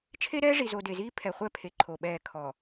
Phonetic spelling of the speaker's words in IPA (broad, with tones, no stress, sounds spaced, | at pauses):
t͡ʃʰ e˦ ɾ ɛː˦ ʐ i˨ z o˨ d e˨ z iː˦ pʰ ɛ˨ χʷ ɛ˦ pʰ e˨ ǃʰ o˨ ɓ ɛː˦˨ kʰ ɔ˨